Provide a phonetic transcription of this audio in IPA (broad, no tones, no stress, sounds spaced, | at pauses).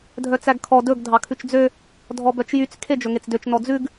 dʱ œ t͡s æ ɡ kʰ ɔ d ɵ ɡ dʱ ɑ kʰ ʉ t͡ʃ d͡z ø | dʱ ɔ b œ t͡ʃ j y t͡s kʰ e d͡ʒ ɵ ŋ e t͡s d ø t͡ʃ n ɔ d͡z ʉ ɡ